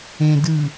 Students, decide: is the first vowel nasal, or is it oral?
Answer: nasal